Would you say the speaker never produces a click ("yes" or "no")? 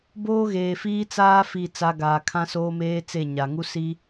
yes